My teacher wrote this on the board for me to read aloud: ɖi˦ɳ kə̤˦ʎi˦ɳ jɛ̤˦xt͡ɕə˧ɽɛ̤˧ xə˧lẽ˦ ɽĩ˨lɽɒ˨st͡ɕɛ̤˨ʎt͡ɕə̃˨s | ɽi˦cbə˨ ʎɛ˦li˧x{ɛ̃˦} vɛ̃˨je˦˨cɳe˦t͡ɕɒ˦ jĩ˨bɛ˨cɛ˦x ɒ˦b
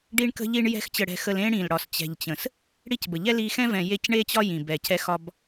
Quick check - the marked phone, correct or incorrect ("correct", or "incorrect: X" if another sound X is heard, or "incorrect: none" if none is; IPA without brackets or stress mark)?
correct